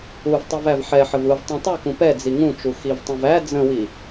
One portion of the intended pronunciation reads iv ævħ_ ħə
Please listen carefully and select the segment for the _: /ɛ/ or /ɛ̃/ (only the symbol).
ɛ